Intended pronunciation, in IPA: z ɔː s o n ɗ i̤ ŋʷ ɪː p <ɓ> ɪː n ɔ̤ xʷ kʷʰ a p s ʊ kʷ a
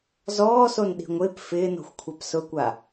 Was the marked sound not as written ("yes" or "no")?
yes